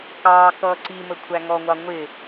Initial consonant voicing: voiceless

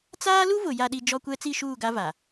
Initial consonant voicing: voiceless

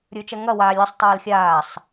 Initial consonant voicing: voiced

